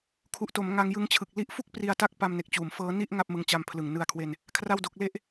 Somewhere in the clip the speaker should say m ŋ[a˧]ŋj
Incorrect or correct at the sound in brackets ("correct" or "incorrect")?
correct